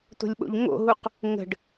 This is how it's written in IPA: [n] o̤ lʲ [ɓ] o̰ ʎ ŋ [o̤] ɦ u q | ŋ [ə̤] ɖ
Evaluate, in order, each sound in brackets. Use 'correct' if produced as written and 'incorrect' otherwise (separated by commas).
incorrect, correct, incorrect, correct